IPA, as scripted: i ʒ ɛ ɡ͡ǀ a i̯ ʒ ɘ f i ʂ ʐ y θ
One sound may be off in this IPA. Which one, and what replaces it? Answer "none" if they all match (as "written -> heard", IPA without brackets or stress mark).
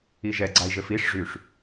θ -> ʂ